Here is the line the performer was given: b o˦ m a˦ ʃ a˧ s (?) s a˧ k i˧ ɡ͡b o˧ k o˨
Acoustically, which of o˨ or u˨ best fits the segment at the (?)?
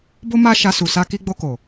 u˨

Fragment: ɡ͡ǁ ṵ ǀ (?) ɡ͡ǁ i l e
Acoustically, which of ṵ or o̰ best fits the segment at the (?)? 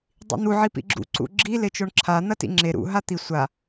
ṵ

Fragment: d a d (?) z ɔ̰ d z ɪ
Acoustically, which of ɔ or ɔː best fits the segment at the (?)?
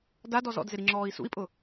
ɔ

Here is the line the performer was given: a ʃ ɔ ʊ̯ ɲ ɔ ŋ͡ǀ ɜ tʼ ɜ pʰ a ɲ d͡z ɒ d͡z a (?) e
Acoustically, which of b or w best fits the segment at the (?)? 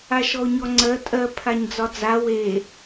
w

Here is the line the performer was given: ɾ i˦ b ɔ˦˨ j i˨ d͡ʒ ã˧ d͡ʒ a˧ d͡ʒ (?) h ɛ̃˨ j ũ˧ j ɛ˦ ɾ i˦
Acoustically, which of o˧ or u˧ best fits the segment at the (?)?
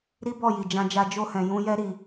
o˧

